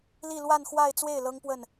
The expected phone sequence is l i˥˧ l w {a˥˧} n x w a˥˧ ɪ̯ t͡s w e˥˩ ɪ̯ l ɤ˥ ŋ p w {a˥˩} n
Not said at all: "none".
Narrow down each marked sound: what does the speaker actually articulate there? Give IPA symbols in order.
a˥˧, ə˥˩

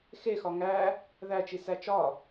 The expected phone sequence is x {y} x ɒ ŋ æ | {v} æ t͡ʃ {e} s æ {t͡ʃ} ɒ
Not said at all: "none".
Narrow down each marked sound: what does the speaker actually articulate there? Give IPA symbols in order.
e, ð, i, t͡ʃ

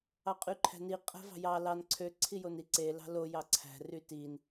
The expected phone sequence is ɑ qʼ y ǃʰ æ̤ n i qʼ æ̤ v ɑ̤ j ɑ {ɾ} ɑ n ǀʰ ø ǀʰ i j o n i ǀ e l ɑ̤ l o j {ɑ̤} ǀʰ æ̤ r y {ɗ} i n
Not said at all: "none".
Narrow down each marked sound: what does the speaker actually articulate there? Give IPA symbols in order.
l, ɑ, t

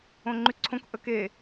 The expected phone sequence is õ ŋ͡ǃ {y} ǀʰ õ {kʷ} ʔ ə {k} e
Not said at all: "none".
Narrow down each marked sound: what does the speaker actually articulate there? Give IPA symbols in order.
y, k, k

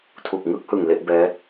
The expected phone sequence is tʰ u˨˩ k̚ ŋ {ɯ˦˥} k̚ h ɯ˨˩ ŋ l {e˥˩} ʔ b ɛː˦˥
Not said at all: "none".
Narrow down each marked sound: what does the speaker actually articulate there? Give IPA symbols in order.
ɯ˥˩, e˥˩

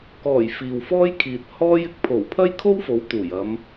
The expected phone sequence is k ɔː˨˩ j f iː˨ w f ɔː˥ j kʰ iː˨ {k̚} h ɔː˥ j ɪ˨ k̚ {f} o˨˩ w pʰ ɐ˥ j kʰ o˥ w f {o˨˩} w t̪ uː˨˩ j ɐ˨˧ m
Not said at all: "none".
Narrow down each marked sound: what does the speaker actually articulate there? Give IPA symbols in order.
t̚, pʰ, o˨˥

